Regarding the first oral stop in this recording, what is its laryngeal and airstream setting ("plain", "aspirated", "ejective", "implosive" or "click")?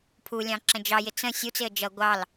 aspirated